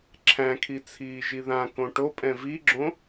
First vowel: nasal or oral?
nasal